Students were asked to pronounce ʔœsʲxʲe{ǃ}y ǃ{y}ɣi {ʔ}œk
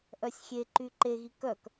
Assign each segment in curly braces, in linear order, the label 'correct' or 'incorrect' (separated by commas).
correct, incorrect, incorrect